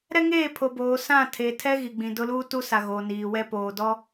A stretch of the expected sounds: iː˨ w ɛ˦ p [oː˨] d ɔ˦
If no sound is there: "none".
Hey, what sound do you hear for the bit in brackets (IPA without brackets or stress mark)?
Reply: oː˨